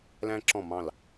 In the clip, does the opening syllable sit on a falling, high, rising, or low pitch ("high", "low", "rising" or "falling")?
high